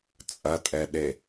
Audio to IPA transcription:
t͡sʼ ɐ tʼ ɛ ɗ e

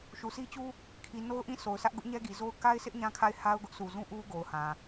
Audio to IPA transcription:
ʃ u˨ s i˦ t͡ɕ u˦ | kʰ i˨ n o˦ ʊ̯ ʔ ĩ˦˨ sʰ o˨ ʊ̯ sʰ ä˦ ʔ ɡ ʊ˦ ʔ ɲ ɛ˦ ɡ i˨ z o˦ ʊ̯ k a˦ ɪ̯ s ɪ˦ ʔ ɲ ã˦ kʰ a˦˨ ɪ̯ h a˦ ʊ̯ ɡ ʊ˦ ʔ sʰ u˨ z ũ˦ ʔ u˦ ɡ o˨ ʊ̯ h ã˨

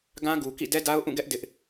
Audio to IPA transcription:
ɡ ã˦ ɡ u˨ k ḭ˦˨ d ɛ˦ d a˦ ʊ̯ ʔ ũ˦˨ ɡ ɛ˦ ʔ d ɪ˦ ʔ

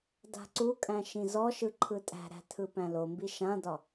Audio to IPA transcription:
d a̤ ǀ u kʼ æ̃ ʃ ĩ z ɔ ʃ ɯ ǃʰ ɯ tʼ æ̤ ɾ æ̤ tʰ ɯ p æ̃ l o m b i ʃ ã d ɒ

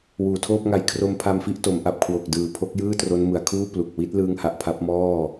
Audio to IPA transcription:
w uː˨˩ tʰ oː˥˩ p̚ ŋ a˧ j kʰ r o˧ m pʰ a˧ m f i˦˥ ʔ t o˩˦ m ʔ a˨˩ p̚ kʰ w o˨˩ k̚ d ɯː˨˩ pʰ o˦˥ k̚ j ɯː˥˩ t r o˦˥ n m ɯ˨˩ a̯ kʰ uː˥˩ p l u˨˩ k̚ w i˦˥ t̚ l ɯː˦˥ ŋ h a˨˩ ʔ pʰ a˦˥ p̚ m ɔː˥˩

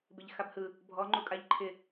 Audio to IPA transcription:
b ɪ ʎ x a b h ɯ | bʱ ɔ ŋ͡ǃ u kʼ a ʎ ǃʰ ɪ

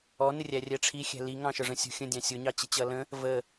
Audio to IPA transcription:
ɔ n ɪ rʲ æ rʲ ɛ ʈ͡ʂʰ i xʲ æ̤ l i ŋ ɑ̃ ʃ ə˞ ʐ ə̃ sʲ ṳ xʲ ə̃ dʲ ɑ̃ sʲ ʊ ɲ ɑ t͡ɕ i t͡ɕ ʌ l ə̃ | v ə

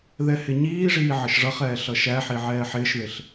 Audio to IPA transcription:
ð ɛ h ɪ ɲ iː ʐ iː ʕ ə ʃ ʐ ʌ χ ɛː ɬ ʌ ʃ æ ħ i ʕ ɛː ħ ɪː ʃ ð ɪ ɬ

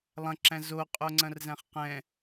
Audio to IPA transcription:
lˠ ɐ̃ ǁ æ̃ z o qʼ o ŋ͡ǀ ɐ̃ r z æ̃ χ q ɛ̃

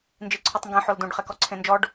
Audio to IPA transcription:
n d͡ʒ i ǀʰ u tˤ ŋ ɡ ẽ ħ o l d ũ ɖ χ ɛ k ɔ ǀʰ ẽ n d͡ʒ ɔ ɖ

